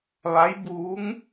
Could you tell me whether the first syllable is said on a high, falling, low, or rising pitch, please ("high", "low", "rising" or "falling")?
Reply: rising